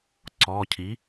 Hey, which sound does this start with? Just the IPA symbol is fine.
ǀ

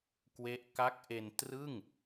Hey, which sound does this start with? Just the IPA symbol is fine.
k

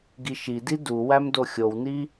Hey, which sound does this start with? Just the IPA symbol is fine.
ɡ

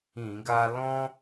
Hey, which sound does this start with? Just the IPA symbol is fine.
ĩ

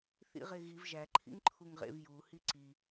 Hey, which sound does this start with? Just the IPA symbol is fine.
θ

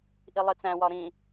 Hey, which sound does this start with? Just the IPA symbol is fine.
ʔ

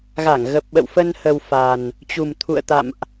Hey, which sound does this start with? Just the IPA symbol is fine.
ɣ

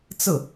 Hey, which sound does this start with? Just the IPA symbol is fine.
t͡s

